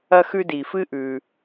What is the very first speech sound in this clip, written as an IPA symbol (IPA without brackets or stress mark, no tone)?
ɐ